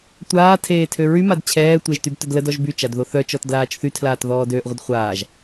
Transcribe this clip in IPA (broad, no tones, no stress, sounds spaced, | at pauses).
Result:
tʷ aː tʰ eː tʰ ø ɹ y m a d t͡ɕʰ ɛː tʷ e ʒ t y b t œ d l ə d ɔ ʒ b y t͡ʃ a d ð o θ œ t͡ʃ ɔ t d l aː t͡ʃ θ y tʰ l aː t ð ɔː d øː ʔ ʁʷ ə d χʷ aː ʒ